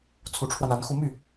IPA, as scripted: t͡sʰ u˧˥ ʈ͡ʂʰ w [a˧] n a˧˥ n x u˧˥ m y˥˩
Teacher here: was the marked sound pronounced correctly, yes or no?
yes